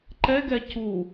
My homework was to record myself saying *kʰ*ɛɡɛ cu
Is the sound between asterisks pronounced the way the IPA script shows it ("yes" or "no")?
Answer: no